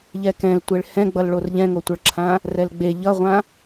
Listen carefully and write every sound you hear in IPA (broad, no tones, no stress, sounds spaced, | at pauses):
ʎ ɛ k ɛ̃ l tʷ e ɭ h ɛ̃ ɡ͡b ʌ l ɭ o r ʎ ɛ̃ ŋ o tʷ ʌ ɭ ǁʰ ã | r ɛ l ɡ͡b e ʎ ʌ ʁʷ ã